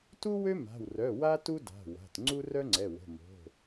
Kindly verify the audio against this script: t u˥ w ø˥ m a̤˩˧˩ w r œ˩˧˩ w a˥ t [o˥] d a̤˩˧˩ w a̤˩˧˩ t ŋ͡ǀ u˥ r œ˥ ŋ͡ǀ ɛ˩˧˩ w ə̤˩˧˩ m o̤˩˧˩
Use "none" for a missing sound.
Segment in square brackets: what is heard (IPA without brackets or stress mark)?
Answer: u˥